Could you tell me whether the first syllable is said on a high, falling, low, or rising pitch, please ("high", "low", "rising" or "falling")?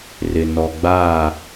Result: low